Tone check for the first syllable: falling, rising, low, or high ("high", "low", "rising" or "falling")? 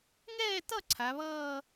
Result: falling